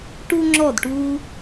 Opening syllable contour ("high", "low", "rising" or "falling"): high